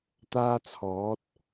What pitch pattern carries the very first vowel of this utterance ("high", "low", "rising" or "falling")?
high